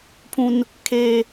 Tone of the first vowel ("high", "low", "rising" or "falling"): high